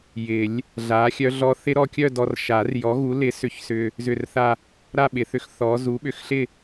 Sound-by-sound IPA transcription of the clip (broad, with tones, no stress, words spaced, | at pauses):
jɪ˨˩˦lʲ | ɮa˨˥xʲœ˦˥ɮɔ˦˥ θɪ˦˥ɾɔ˧kʲœ˥˧dɔ˧r ʃa˨˩˦rjɔ˨˥ɣu˨˥ lɪ˨˥ sʏ˧çsʏ˧ | zʏ˥˧rθa˥˧ | ɾa˥˧ɓɪ˨˩˦θʏ˨˥x θɔ˨˥ zu˨˥ɓʏ˨˥xɬɪ˥˧